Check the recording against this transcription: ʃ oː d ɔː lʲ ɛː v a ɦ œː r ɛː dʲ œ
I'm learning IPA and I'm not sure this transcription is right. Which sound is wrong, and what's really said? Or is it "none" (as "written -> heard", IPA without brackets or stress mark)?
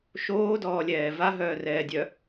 none